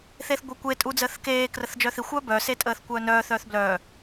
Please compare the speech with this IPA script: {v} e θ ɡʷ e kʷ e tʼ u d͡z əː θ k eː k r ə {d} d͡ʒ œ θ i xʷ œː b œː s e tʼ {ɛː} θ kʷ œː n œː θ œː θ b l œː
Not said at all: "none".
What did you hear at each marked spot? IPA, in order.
θ, θ, əː

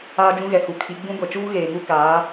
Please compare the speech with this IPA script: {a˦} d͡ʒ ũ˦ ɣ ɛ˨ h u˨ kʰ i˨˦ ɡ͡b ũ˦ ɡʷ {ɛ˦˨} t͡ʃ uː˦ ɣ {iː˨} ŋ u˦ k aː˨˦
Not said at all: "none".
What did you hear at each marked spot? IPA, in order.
aː˦, ɛ˨, eː˨

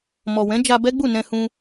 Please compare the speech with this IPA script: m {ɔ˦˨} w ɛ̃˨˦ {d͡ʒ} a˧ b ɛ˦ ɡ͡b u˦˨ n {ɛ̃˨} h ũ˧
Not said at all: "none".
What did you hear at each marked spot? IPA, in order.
ɔ˨, d͡ʒ, ɛ̃˧

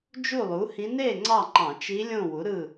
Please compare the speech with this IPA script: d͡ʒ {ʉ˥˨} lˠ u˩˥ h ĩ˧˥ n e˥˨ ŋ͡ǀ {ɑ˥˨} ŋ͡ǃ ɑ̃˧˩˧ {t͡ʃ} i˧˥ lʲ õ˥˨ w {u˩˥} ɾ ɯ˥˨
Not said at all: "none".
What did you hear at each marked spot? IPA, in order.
u˥˨, ɑ˥˨, t͡ʃ, u˩˥

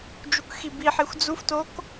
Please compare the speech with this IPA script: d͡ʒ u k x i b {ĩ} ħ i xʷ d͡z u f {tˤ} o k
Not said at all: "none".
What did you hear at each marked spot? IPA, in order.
i, t

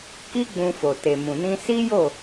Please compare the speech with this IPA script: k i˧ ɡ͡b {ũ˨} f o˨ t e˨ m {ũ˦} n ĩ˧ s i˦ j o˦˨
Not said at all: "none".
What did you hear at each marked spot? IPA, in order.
ũ˨, ũ˨

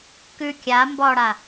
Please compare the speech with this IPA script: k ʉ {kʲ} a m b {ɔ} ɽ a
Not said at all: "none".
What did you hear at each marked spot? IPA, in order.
kʲ, ɔ

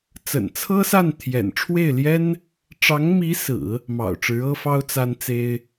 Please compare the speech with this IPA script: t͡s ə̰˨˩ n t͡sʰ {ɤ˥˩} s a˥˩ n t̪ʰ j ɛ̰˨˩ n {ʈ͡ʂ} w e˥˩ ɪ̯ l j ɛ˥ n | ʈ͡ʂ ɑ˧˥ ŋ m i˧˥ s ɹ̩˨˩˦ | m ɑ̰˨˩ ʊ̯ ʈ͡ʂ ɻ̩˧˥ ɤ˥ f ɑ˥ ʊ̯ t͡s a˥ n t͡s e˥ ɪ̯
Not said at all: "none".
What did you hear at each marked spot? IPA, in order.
ɤ˥, ʈ͡ʂʰ

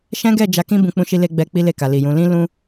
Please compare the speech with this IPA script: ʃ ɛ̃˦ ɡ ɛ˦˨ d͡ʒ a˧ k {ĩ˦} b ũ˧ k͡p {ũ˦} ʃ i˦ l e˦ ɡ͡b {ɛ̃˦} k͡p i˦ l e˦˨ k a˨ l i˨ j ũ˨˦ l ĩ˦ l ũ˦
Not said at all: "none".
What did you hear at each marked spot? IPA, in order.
ĩ˦, ũ˦, ɛ˦

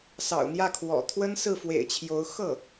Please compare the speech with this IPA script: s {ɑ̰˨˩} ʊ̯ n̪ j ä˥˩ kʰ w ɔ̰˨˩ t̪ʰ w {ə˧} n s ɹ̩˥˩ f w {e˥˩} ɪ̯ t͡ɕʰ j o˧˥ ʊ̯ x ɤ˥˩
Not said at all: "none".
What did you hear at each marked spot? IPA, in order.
ɑ̰˨˩, ə˥, ḛ˨˩

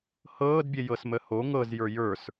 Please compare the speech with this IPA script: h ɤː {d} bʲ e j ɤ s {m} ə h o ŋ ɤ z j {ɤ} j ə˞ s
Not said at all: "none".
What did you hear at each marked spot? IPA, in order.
d, m, ə˞

